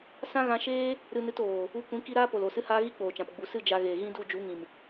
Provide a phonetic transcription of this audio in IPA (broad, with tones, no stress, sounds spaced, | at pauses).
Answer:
s ã˦ ɣ ã˧ ʃ eː˦ | ɾ ɨ˧ n ɨ˧ t oː˨ | u˧ kʷ ĩ˨˦ k i˧ ɾ aː˦ p o˨ l o˨ s ɨ˧ h aː˧ ɣ i˦ k͡p oː˨ t͡ʃ ã˨ p ɡ͡b u˨ s ɨ˦˨ d͡ʒ a˧ ɣ eː˨ ɣ ĩ˦ d u˦˨ d͡ʒ u˨˦ ŋ ĩ˨ m